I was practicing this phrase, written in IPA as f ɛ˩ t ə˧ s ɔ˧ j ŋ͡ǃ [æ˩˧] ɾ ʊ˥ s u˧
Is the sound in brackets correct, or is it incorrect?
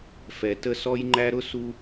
incorrect